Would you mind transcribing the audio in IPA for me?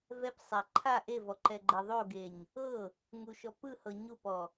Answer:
v ɛ p sˤ a ǃʰ a ʔ e v ɔ ǃ ɛ ɡ͡ǃ ɛ ðˤ o ɡ e ɲ | ɤ | ŋ u ʃ ɔ p ɯ h ɤ ɲ u p ɔ

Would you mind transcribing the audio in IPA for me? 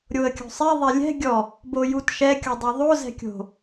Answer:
ɾʲ o ə̯ kʲ o̤ sˤ ɛ ðˤ ɛ lʲ ɛ̤ ɡʲ ɔ | b o j u t ʃ ɛ kʲ o dˤ o ðˤ o z ɛ̤ kʲ o̤

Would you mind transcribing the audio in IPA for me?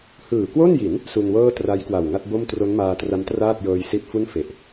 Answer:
h ɯː˨˩ k w o˥˩ n j i˩˦ n | s u˧ n w ɤː˥˩ t r a˦˥ j k w a˨˩ w ŋ a˥˩ t̚ b o˥˩ m t r o˦˥ n m aː˧ t r a˦˥ m t r aː˥˩ t̚ j ɤː˧ j s i˦˥ t̚ f u˥˩ n f e˨˩ ʔ

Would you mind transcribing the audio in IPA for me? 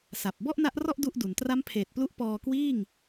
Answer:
s a˨˩ p̚ b ɔ˥˩ ʔ n a˦˥ ʔ r ɔ˥˩ ʔ d u˥˩ ʔ d u˩˦ n t r a˦˥ m pʰ eː˨˩ t̚ p l u˦˥ ʔ p ɔː˧ k w iː˥˩ ŋ

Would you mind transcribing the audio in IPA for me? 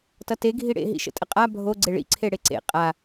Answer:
t ʌ t e ɡʱ i ɽ ḛ ɦ ḭ ʃ ə̰ tʼ ə qʼ a bʱ o ɡ͡ǀ e ɭ ḭ ǀʰ e ɽ e ǀ ḛ qʼ a

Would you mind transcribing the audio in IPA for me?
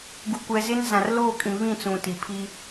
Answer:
ɡ u˨ kʷ ɛ˨ z ɪ˦ n z ã˨ r l oː˦˨ kʼ ĩ˨ β ĩ˦˨ t͡s ũ˨ t i˨ pʰ i˦

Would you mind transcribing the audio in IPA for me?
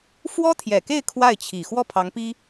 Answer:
f w ɔ˥ t̪ʰ j ɛ˨˩ k e˥˧ ɪ̯ kʰ w a˥˩ ɪ̯ t͡ɕʰ i˨˩ x w ɔ˥˩ pʰ ɑ˧˥ ŋ p i˥

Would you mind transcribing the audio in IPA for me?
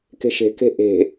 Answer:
k e̤ ʃ e̤ k e̤ ʔ e̤

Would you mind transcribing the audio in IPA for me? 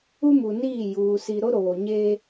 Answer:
u˦ m u˨ n iː˦˨ j uː˨ s i˨ ɾ o˦ ɾ oː˨ ɲ e˦

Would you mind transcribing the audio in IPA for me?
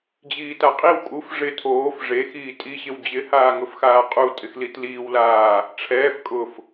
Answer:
d͡ʑ iː t a qʼ i w kʼ u f ʐ ɪ tʰ oː f ʐ e x iː tʼ i ɕ ɪ w d͡ʑ ɪ h aː ŋ ʊ f x aː qʼ u tʼ ɪ x l i t l iː w l aː | ʈ͡ʂʰ ɛː f kʼ ʊ f

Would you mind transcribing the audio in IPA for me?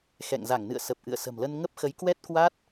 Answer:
x ɛ̰˧˨ ŋ z a˧˩ ŋ n ɨ̰˧˨ ə̯ s ə˨˩ p̚ ʔ ɨ̰˧˨ ə̯ s ə̤˨˩ m l ə˧ n ŋ ə˦˥ p̚ x ə˨˦ j k w ɛ˦˥ t̚ k w a˦˥ t̚

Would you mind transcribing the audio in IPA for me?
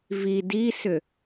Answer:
v i d i s ʏ

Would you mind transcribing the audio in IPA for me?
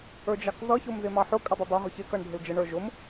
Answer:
ə˞ d͡ʒ ɑ k z ʌ ç ʊ m z ɪ m ɑ ħ ʊ kʼ ɪ dˤ ʊ dˤ ʌ ɦ ʊ ç ɪ k ʌ ɳ ɖʱ ɪ l d͡ʒ ə ɳ ə˞ ʒ ʊ m

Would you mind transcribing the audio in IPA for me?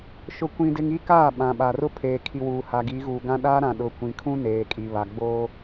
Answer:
ʃ ʊ˦ kʷ ĩ˦ d ɪ˦ ŋ i˦ k aː˦˨ ɓ ã˨ ɓ a˨ r ʊ˦ pʰ eː˨ kʰ i˨ w uː˨ h a˨ ɡ i˨˦ ɣ uː˨ ɡ ã˦ ɗ a˦ ɾ ã˨ ɗ ʊ˨ kʷ ĩ˨ kʰ ũ˦ n eː˨ kʼ i˨ β a˨ ɡ͡b oː˦

